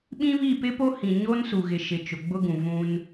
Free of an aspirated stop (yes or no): yes